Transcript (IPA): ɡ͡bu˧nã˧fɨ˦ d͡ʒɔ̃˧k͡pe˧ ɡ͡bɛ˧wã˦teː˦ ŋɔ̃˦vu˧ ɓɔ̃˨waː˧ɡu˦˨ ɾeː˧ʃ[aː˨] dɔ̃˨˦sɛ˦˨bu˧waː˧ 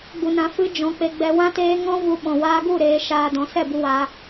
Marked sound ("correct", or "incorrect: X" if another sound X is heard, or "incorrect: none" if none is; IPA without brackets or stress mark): incorrect: aː˧